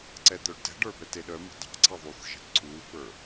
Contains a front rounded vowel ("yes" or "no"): yes